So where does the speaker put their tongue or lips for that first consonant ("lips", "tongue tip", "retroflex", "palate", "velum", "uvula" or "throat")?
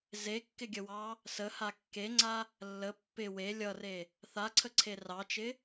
tongue tip